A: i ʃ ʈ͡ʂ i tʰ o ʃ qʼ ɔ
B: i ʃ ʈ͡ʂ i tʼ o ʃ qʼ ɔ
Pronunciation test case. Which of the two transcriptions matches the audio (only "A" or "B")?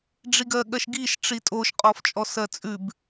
B